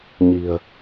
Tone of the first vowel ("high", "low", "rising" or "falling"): low